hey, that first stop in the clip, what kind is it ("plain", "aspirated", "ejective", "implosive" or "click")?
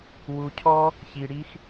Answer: aspirated